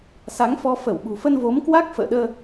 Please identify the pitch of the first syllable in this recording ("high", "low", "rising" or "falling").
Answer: rising